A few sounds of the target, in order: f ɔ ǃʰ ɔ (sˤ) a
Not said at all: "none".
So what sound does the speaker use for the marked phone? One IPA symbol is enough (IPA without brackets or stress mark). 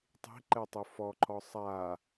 sˤ